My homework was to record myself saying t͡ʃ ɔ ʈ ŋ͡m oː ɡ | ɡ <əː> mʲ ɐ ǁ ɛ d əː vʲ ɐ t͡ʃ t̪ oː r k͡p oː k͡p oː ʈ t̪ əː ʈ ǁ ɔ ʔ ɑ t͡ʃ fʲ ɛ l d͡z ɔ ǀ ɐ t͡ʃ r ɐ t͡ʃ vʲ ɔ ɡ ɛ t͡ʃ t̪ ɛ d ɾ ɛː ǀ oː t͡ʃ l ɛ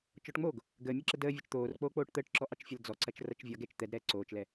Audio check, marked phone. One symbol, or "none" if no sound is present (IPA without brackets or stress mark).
əː